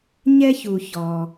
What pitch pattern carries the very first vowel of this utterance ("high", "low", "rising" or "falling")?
high